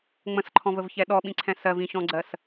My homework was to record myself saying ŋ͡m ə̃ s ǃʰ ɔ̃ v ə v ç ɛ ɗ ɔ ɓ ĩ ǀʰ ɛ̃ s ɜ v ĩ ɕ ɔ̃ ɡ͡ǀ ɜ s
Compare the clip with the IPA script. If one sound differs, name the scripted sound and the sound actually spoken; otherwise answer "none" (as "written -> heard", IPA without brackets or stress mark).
none